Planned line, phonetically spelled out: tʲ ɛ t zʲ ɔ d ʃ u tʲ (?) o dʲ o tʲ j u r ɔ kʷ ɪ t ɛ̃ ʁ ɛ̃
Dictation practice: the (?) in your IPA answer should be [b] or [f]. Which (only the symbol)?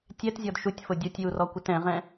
f